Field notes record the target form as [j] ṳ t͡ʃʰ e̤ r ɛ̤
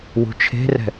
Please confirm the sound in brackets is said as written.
no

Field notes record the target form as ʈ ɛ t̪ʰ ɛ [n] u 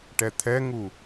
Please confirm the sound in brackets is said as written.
no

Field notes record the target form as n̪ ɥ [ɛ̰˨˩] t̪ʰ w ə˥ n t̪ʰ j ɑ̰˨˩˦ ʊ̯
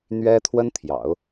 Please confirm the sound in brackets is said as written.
no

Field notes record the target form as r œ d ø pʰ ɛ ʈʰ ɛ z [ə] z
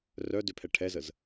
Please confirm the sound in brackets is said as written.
yes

